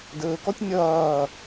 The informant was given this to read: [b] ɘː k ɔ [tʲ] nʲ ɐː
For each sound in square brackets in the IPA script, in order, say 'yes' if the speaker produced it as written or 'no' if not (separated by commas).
no, yes